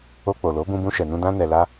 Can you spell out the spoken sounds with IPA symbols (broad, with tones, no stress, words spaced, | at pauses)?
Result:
o˧k͡po˨lo˨˦ bũ˦ bũ˧ʃɛ˨nũ˧ dã˦nɛ˧la˦